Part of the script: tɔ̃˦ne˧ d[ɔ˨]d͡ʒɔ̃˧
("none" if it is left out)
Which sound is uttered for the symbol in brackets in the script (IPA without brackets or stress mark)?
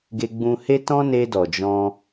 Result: ɔ˨